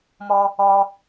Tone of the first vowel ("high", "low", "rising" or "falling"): high